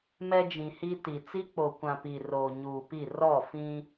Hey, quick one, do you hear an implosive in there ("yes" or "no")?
no